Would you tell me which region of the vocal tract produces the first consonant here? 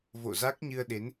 lips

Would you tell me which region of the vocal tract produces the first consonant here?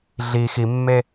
tongue tip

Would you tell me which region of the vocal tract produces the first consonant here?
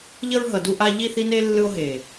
palate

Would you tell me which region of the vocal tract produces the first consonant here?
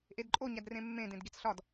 throat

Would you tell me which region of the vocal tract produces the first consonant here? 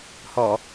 throat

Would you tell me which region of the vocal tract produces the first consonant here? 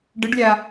retroflex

